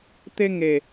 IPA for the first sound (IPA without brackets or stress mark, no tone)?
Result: t̪